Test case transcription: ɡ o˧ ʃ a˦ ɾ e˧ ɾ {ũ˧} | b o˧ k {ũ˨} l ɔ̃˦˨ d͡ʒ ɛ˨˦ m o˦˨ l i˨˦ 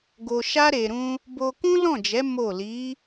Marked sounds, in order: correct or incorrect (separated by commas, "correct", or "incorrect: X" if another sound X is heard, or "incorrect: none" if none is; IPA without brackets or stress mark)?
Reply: incorrect: ũ˦, incorrect: ũ˦